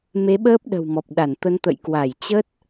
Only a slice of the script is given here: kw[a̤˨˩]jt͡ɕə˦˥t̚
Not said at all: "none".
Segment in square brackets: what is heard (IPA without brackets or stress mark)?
a˧˩